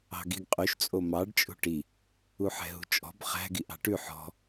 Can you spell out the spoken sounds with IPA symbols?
ɑ̤ ɡ i ɡ qʼ y ʃ t͡sʼ o m ɑ ɖ t͡ʃʼ ṳ ʈ i | u ħ ɛ̤ ɦ ṳ t͡ʃʼ ɔ̤ b χ æ̤ ɡ i ʔ ɑ̤ ʈ ʉ ħ ɔ̤

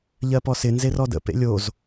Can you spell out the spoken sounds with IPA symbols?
ʎ ɜ p ɔ s ɪ n z e r ɔ d ə̰ p ḛ lʲ o z

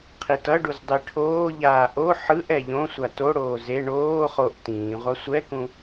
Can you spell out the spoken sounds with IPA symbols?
qʰ i t ʌ ɖ u z dˤ i ʈʰ oː ʎ aː ʔ o ħ ɯ ʔ ɛ ʎ õ sʷ a t o ɽ oː z e ɳ oː χ o ʔ t ĩː ʁʷ a sʷ ɛ k ũ

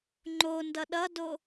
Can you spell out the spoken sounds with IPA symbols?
ŋ͡ǃ o n d ʌ ɗ ʌ d o

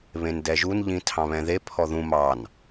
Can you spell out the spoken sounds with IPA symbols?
β ẽ n d ɛ ʒ u n ʎ ĩ tʰ ɑ̃ β ɛ̃ ð e pʰ ɔ ð ũ m ɑ n

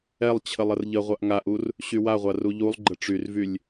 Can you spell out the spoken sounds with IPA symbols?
ɛ lˠ t͡ɕʰ ə lˠ ə r ʎ ə ʁʷ a ʔ ŋ a ʔ u r | ɕ y w a ʁʷ a r u ʎ u lˠ ɡ͡ǃ ə ʈ͡ʂ y r v y lʲ

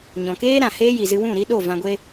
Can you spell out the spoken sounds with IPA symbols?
ɲ ɔ̃˨ k eː˦ ɾ ã˨ h eː˦ j i˨ z ɨ˧ w ũ˦˨ ɾ i˦ ɗ o˦˨ v ã˧ ɡʷ e˦

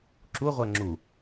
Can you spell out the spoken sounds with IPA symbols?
ǁ u ʁʷ ɜ ŋ͡ǁ u

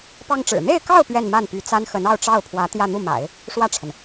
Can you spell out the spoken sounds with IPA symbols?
p ɑ˥ ŋ ʈ͡ʂ ɻ̩˨˩ n̪ e˥˧ ɪ̯ k ɑ˥˧ ʊ̯ p ɥ ɛ˥˧ n m a˥˩ n p y˧˥ t͡s a˥ n x ə˧˥ n ɑ˥˧ ʊ̯ ʈ͡ʂ ɑ˥˩ ʊ̯ pʰ w ä˧˥ t̪ j ä˥˧ n̪ u˥˩ m a̰˨˩˦ ɪ̯ | ʂ w ä˥˩ ʈ͡ʂʰ ə˩ n

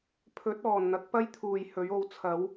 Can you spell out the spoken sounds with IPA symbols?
pʰ ɵ˨˥ t̚ ɔː˨˩ n n̪ ɐ˨˥ k̚ p ɐ˥ j t̪ʰ uː˨˩ j h ɵ˨˥ ɥ o˨˥ w t͡sʰ ɐ˨˥ w

